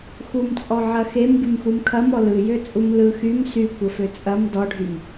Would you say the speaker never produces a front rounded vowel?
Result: no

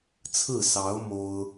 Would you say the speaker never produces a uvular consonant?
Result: yes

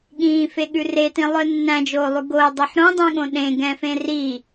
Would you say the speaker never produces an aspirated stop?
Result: yes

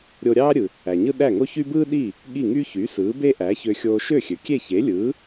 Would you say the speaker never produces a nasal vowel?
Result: yes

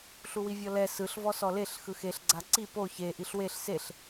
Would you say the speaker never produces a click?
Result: no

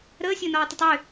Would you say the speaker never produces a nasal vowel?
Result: yes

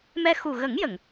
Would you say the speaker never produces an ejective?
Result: yes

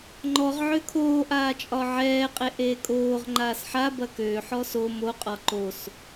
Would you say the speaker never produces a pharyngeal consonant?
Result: no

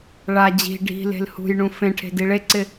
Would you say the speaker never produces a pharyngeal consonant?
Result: yes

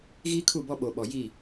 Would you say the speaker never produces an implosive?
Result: no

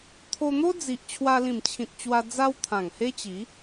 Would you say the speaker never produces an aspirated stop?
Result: no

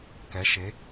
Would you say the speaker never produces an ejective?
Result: yes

